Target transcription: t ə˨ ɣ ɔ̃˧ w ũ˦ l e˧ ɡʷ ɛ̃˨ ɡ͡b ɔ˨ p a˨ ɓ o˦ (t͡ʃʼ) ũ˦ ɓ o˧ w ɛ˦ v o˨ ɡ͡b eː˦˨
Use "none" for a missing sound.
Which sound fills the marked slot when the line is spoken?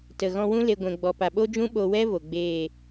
d͡ʒ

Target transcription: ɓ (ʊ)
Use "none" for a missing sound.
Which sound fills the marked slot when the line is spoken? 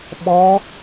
ɔ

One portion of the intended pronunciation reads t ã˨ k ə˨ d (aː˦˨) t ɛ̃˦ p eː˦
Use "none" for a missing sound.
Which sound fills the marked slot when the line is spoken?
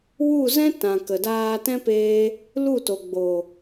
aː˧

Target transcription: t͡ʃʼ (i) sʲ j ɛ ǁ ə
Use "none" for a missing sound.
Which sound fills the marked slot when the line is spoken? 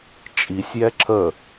i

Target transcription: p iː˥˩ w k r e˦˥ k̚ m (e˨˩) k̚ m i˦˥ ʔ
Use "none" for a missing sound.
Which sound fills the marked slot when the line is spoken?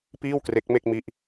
e˥˩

